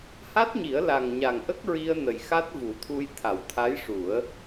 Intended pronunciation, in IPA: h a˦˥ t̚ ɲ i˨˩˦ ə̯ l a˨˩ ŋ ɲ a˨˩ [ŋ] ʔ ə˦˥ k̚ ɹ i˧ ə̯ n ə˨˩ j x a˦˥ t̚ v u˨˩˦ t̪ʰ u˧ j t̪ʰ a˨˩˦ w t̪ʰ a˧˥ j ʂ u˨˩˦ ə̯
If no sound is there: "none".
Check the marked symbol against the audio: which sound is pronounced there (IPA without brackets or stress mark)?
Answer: ŋ